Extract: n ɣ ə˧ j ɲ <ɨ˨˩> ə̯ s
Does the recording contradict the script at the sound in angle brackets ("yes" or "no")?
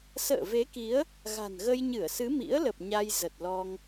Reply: yes